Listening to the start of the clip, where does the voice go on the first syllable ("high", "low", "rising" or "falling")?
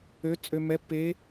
rising